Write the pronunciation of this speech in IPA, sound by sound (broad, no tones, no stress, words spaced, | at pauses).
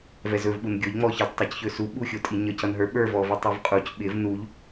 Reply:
vɛzɵv ɓunɡʲoʎ ŋ͡mɔçʌd tˤʌcçɵsu ɓuxʲotʼiɲʌc ʌnɦə˞ ɓə˞ vɔvʌtˤovqʼuc ɓɪv nuʎ